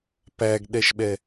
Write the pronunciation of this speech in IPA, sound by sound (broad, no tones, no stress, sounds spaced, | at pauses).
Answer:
p æ ɡ ɗ ɛ ʃ ɓ ɛ